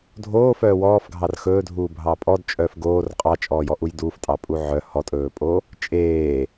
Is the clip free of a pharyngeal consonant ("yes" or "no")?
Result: no